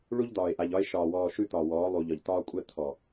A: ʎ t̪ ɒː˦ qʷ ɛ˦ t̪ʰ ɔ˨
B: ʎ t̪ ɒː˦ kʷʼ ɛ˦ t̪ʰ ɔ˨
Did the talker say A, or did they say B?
B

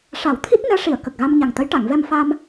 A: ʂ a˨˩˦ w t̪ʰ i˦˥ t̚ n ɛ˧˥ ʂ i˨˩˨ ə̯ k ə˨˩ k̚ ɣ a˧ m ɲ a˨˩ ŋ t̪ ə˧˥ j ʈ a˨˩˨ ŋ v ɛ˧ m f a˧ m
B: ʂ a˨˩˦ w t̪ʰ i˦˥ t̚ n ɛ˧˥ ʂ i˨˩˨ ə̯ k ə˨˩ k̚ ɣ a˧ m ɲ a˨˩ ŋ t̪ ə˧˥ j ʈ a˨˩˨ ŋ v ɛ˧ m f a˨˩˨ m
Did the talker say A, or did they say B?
A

